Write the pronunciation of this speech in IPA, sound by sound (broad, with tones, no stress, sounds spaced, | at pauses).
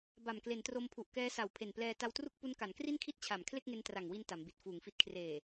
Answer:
b a˨˩ m k l e˩˦ n t r o˧ m pʰ u˨˩ ʔ k ɛː˦˥ s a˨˩ w pʰ e˨˩ n p l ɛː˧ t a˧ w t r u˥˩ k̚ p u˦˥ n k a˩˦ n k r i˥˩ n kʰ i˥˩ t̚ t͡ɕʰ a˨˩ m kʰ l e˥˩ k̚ ŋ e˧ n t r a˨˩ ŋ w i˧ n t a˩˦ m b i˨˩ t̚ f uː˨˩ ŋ f i˦˥ t̚ kʰ r eː˨˩